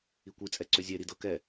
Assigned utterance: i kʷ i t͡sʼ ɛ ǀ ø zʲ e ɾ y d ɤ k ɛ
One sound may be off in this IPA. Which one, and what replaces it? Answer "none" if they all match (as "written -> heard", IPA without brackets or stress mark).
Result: y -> i